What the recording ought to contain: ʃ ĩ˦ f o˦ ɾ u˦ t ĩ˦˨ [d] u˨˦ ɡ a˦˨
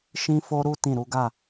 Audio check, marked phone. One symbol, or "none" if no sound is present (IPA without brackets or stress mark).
ɾ